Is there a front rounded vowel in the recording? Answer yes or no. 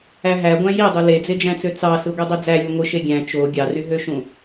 yes